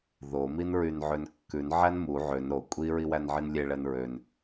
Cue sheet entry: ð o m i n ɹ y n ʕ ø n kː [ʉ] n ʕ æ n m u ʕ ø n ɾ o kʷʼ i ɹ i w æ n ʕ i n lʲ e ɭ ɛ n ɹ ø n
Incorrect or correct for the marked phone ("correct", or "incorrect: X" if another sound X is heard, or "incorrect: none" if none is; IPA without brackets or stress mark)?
correct